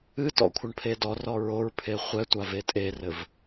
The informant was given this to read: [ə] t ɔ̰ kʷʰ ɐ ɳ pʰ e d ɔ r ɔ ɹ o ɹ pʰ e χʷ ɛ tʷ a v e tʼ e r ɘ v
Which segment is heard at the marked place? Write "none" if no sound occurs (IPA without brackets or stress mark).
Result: ɨ